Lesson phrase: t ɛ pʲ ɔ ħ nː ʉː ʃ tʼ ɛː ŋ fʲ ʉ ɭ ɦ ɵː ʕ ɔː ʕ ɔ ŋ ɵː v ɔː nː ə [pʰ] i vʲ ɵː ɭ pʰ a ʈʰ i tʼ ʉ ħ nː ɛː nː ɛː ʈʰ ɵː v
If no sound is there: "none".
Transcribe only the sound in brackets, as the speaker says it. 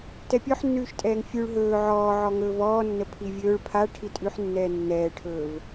pʰ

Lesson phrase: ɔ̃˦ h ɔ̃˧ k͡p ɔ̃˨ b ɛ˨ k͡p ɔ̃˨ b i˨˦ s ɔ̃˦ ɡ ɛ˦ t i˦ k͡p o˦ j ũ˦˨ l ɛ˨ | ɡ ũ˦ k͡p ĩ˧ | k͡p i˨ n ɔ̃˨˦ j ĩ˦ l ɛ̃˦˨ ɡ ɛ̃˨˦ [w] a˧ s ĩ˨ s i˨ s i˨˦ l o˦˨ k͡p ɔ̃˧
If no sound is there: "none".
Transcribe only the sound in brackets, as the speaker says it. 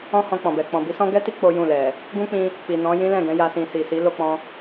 j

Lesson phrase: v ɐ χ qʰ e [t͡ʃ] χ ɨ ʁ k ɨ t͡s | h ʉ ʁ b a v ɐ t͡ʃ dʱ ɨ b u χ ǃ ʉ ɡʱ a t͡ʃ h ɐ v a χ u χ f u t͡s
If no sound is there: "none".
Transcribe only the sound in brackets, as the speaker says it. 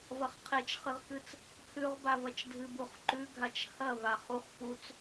t͡ʃ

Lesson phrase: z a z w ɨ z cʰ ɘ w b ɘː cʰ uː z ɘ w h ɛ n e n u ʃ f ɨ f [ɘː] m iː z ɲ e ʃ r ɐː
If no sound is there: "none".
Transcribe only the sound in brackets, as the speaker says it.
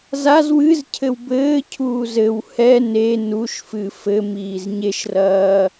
ɘ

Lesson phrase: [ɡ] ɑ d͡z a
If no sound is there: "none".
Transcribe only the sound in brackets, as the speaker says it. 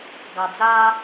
ɡ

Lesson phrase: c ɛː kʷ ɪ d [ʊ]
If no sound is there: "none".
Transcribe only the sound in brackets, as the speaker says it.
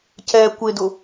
ʊ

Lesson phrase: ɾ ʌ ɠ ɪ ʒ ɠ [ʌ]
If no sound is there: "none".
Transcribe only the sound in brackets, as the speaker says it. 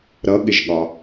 ɒ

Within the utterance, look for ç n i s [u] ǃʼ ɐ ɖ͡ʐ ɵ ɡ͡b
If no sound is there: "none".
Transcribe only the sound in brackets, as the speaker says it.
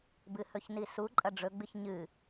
u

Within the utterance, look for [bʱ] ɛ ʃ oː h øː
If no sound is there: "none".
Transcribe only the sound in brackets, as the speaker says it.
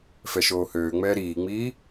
f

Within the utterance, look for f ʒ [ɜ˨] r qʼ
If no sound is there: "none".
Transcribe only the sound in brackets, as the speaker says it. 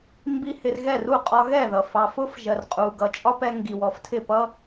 ɜ˨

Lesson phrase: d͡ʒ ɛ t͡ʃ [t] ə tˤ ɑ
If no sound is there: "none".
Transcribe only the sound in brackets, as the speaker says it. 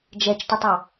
t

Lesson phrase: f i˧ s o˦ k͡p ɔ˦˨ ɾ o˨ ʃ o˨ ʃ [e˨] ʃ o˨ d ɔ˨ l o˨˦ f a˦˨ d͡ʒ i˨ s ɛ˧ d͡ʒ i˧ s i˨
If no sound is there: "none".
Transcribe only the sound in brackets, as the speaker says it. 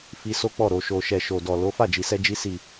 ɛ˨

